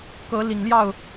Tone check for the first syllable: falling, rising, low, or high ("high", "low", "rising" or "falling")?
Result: rising